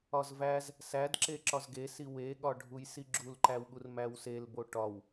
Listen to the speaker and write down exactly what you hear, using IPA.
ɒ z v æ z | s æ d ǁ e ǁ ɒ z ɡ e s i w e ɠ ɒ ɖʱ u j s i ɡ͡ǁ u l ǃ æ w ɠ u r m æ w s e l b o ʈ ɒ w

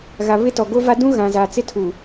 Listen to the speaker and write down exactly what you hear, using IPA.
ɣ a˨ β ɪ˦ t ɔ˨ ɡ o˦ v a˦ d ũ˦ ɣ ã˨ z a˨ t͡s ɪ˦ tʰ uː˨

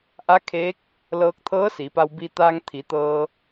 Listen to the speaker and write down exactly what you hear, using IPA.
ʔ a˧˥ kʰ eː˧˥ k̚ | l ɤː˧ k̚ t̪ʰ ɤː˧˥ s i˩˧ p a˧ w b i˧ t̪ a˧ ŋ t̪ʰ i˩˧ t̪ ɤː˧

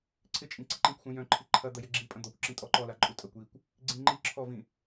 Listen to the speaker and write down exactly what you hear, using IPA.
ǀʰ ɪ t͡ʃʼ ĩ ǀ i ǃ ĩ kʷ x ũ j œ̃ ǃʰ i ǃʰ ɐ d̪ ɐ j ɪ ɡ͡ǁ i pʼ ɐ̃ d̪ ɔ kʷ ǁ ĩ tʼ ɔ ǃ ɔ l a ǃʼ u tʼ ɐ kʷ j i kʷ | ɡ͡ǀ ĩ ŋ͡ǃ i ǁʰ ɔ v ĩ

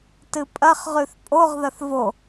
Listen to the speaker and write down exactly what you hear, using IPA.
t ɨ pʼ ɐ χ ʁ ʉ θ pʼ o ʁ ð ɐ θ v o

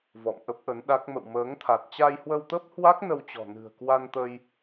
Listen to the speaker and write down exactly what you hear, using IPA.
v ɔ̰˧˨ m ʔ ə˦˥ p̚ ʔ ə˨˦ n ɗ a˦˥ k̚ m ə̰˧˨ w m əː˨˦ ŋ t̪ʰ a˨˩ t̚ t͡ɕ a˧ j h w ə˧ w t̪ ə˦˥ p̚ h w a˦˥ k̚ n ə˧ w t͡ɕ ɔ̤˨˩ n ɨ̤˨˩ ə̯ k w a˧ n t̪ ə˧ j

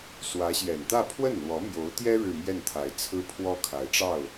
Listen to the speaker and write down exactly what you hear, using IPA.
s w ä˧˥ ɕ j ɛ˨˩ n t̪ ä˥˧ pʰ w ə˥˩ n l w ɔ˧˥ m j o˧˥ ʊ̯ t̪ j ɛ˥ ɻ ɻ̩˥˧ m j ɛ˥˩ n t̪ʰ a˧˥ ɪ̯ t͡sʰ ɹ̩˥ pʰ w ɔ˥ kʰ a˧˥ ɪ̯ ʈ͡ʂ ɑ˥˩ ʊ̯

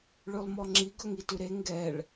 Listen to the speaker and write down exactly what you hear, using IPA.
ɭ ʉ lˠ m ɔ ŋ͡ǁ i ɡ ɵ ŋ i t ʉ ɾ e ŋ ɡ ɛ ɭ

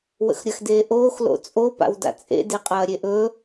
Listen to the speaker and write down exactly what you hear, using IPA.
w ə̰ x ɾʲ ɐ x d eː ʔ oː x l o̰ t͡sʼ o p a̰ w d a̰ t͡sʼ ḛ d e qʼ ɐː ɾʲ e ʔ ɵ

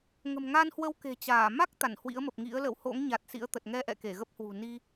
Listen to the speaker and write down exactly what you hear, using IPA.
ŋ ə̤˨˩ m ŋ a˧ n h w ə˧ w k e̤˨˩ t͡ɕ aː˧˩ m a˦˥ k̚ t̪ a˧˩ n h w ḭ˧˥ ə̯ m ə˨˩ p̚ ŋ ḭ˧˥ ə̯ l ə̰˧˨ w h o̰˧˥ ŋ ɲ a˨˩ t̚ s ḭ˧˥ ə̯ t̪ ə˨˩ t̚ ŋ ɛ˧ ʔ ɛ̰˧˨ k e˧˩ ɣ ə˦˥ p̚ h w ṳ˨˩ n i˧

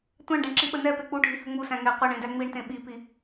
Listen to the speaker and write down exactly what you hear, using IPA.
tʷ æ̃ ɳ ɖ ɛ̃ ɳ ǁ i ɓ ə n ɛ p e k͡p u ɖʱ i h ə ŋ͡m u s æ̃ ŋ ɛ qʷ e ɳ ẽ d æ ŋ͡m i ɳ t ẽ ɓ i p i

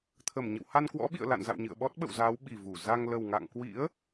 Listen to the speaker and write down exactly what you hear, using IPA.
t̪ʰ ə˧˩ m ɲ ə̰˧˨ w h a˧ n k w ɔ̰˧˥ ɓ ḭ˧˨ ə̯ l a̰˧˨ n z a̰˧˨ w ɲ ɨ̰˧˨ ə̯ ɓ ɔ˦˥ t̚ ɓ ə̰˧˨ w z aː˨˦ w ɓ i˨˩ v u˧˩ z a˧ ŋ l ə˨˩ w ŋ a̰˧˨ ŋ k w ḭ˧˥ ə̯

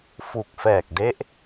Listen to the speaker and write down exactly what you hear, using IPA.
f u˨˩ k̚ f ɛː˨˩ k̚ d e˦˥ ʔ

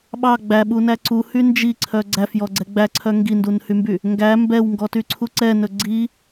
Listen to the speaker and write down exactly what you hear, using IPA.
ɓ ɑ ɡ͡b æ ɓ u n æ ǀ u h y n d͡ʒ i ǀʰ œ ɡ͡ǀ æ f j ɔ ɡ͡ǀ ɛ ɡ͡b æ ǀʰ œ ŋ ɡ i n d u n h y m b y | ŋ ɡ æ m b ɛ w ŋ ɡ ɔ t y ǀʰ u ǀ ɛ n ɵ ɡ͡ǀ i

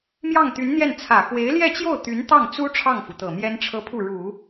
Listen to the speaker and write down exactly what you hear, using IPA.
m j ɑ˥˩ ŋ t̪ y˧˥ n n̪ j ɛ˥˩ n t͡sʰ ä˨˩ x w e˧˥ ɪ̯ l j ɛ˥˧ t͡ɕ j o˥˩ ʊ̯ t̪ y˧˥ n t̪ ɑ˥˩ ŋ t͡s u˥ ʈ͡ʂʰ ɑ˥˩ ŋ f u˩ t̪ ɤ˨˩ m j ɛ˥ n ʈ͡ʂʰ ɤ˥ pʰ u˥˩ ɻ u˨˩˦

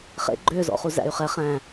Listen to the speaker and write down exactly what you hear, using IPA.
χ ḛ ɡ͡ǃ ø z ɔ̰ χ u z æ̰ y̯ χ ɛ χ æ̃

